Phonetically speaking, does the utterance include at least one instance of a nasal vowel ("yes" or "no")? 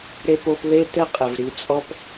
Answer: no